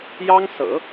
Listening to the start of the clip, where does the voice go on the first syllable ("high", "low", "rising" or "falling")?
high